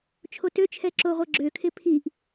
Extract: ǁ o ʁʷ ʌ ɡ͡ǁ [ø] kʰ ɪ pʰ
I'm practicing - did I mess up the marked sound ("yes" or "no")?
no